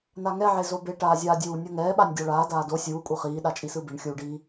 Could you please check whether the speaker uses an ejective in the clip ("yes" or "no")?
yes